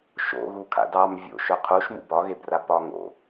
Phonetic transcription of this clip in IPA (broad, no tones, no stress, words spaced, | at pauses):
ʃo̰ɣu kʰa̰dɑm vʲo̰ ʃœqʰuʃmṵ bɒɣebra pɒŋo̰